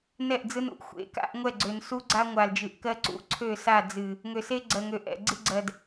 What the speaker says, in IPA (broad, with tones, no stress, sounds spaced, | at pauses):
n ɛ˦˨ ʔ d͡z ɯ˦ n ṵ˨ ʔ xʷ ḛ˨˦ k a̰˦ ʔ ŋʷ ɛ˦˨ ɡ͡ǀ ø˨ n s u˦ ɡ͡ǀ a˦ ŋʷ a˨ l d͡ʒ ɨ˨ ʔ k ɜ˦ ǀ ṵ˦ ǀʰ ø˦˨ s a˦˨ d͡z ɨ˨ | ŋ ø˨ s e˦ ɡ͡ǀ ɜ˨ ŋ ø˨ ʔ ɛ̰˨ ɡ͡ǀ ɨ˦ ɡ͡ǀ ɜ˨ d